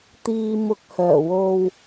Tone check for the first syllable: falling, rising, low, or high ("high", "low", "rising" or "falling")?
low